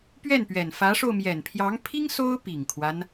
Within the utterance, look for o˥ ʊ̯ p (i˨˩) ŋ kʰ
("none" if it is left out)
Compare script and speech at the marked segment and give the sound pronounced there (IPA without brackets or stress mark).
i˨˩